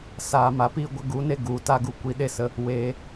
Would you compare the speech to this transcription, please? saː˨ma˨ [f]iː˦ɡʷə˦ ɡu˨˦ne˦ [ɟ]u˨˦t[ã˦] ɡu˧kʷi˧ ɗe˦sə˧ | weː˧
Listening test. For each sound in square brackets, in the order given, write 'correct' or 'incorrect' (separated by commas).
incorrect, incorrect, incorrect